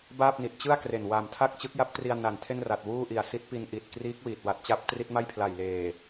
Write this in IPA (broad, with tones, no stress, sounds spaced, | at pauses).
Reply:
b aː˥˩ p̚ n i˨˩ t̚ t͡ɕ ɯ˥˩ a̯ k r e˨˩ n w a˨˩ m tʰ a˥˩ k̚ t͡ɕ ɯ˦˥ k̚ j a˦˥ p̚ t r i˧ a̯ n a˨˩ n tʰ e˥˩ n r a˨˩ t̚ w uː˥˩ ʔ i˨˩ a̯ s i˦˥ t̚ p i˧ n ʔ i˨˩ t̚ k r iː˦˥ k̚ w iː˨˩ t̚ w a˨˩ t̚ t͡ɕ a˦˥ p̚ t r i˦˥ t̚ m a˥˩ j pʰ l a˨˩ j l eː˨˩